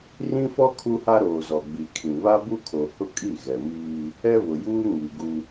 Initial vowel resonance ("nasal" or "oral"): nasal